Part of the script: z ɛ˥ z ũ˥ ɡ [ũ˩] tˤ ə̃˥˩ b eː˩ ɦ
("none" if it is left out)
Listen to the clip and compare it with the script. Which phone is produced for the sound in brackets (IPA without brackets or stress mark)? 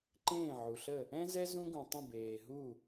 ũ˩